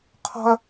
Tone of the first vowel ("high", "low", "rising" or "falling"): low